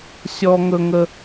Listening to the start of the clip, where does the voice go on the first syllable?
high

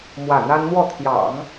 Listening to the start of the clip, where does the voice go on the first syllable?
falling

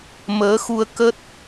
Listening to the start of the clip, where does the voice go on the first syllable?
rising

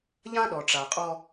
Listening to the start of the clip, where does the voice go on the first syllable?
high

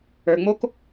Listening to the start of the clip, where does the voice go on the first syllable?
low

